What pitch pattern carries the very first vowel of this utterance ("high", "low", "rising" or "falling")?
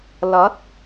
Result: rising